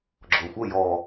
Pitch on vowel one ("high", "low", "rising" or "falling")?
low